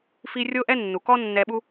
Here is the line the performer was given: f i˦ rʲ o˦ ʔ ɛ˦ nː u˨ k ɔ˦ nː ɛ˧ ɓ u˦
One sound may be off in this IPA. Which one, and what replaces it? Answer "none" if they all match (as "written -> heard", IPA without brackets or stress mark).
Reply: none